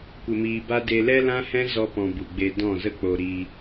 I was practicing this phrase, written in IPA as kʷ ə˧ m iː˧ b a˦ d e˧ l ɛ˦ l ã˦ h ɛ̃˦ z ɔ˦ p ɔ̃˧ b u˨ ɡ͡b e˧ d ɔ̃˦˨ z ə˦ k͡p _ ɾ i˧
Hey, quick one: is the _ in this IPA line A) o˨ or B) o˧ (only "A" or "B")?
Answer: B